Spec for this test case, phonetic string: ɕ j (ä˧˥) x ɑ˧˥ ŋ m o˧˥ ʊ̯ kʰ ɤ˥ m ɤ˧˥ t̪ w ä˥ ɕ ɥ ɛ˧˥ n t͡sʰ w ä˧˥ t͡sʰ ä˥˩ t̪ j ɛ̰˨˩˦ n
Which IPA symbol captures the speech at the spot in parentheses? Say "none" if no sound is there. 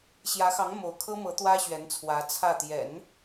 ä˧˥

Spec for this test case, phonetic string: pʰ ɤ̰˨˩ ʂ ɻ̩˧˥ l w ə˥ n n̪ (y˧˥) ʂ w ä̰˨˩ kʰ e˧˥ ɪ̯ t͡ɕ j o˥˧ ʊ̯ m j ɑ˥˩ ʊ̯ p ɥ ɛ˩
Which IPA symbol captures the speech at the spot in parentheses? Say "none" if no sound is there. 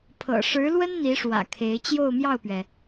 i˧˥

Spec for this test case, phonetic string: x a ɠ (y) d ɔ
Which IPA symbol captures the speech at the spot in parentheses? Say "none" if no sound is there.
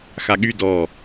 y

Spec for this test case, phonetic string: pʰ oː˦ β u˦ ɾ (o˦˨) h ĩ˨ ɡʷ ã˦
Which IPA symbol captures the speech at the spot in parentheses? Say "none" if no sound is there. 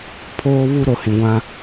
o˨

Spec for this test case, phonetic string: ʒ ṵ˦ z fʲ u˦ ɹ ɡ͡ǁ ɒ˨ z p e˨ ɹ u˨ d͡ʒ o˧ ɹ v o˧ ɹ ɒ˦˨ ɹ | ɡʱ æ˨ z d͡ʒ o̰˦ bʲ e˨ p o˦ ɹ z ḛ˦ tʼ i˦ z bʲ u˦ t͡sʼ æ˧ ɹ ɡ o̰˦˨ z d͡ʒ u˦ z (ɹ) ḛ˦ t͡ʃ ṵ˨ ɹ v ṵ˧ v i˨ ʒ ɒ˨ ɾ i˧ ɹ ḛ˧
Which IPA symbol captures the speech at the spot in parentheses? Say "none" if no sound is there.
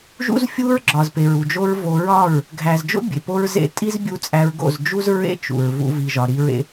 ɹ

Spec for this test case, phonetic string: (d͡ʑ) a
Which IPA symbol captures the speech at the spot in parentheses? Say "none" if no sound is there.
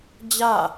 d͡ʑ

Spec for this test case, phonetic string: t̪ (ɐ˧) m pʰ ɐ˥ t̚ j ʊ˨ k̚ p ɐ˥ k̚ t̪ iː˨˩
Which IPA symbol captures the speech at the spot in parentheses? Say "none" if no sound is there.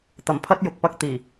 ɐ˨˩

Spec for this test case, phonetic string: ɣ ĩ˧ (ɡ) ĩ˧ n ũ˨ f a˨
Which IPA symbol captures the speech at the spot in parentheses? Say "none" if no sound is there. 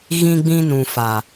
ɡ͡b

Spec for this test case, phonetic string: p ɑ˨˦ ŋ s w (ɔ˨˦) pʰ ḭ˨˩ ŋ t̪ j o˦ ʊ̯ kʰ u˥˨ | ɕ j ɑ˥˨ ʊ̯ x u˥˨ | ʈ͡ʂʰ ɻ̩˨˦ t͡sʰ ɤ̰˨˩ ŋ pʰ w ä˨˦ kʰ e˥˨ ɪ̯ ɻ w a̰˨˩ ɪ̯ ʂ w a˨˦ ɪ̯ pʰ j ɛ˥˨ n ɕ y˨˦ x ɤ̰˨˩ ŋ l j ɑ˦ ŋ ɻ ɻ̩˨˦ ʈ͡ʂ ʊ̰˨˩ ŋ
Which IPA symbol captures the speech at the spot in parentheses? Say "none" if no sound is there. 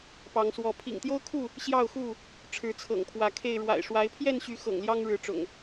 ɔ˨˦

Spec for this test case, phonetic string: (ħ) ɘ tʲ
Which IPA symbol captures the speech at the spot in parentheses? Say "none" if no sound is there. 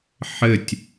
ħ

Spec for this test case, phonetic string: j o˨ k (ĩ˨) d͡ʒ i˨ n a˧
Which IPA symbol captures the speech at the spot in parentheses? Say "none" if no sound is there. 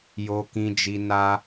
ĩ˨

